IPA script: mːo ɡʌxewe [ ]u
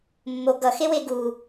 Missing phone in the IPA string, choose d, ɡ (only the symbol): ɡ